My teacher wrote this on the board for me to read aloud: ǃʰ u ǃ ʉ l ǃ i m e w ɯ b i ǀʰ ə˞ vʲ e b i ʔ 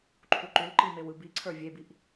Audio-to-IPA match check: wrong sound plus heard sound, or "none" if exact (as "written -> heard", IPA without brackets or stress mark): none